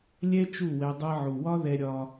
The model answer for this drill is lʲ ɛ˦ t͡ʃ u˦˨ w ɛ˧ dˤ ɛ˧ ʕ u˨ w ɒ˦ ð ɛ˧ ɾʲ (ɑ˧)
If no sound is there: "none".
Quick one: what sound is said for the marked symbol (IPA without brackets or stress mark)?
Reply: ɒ˧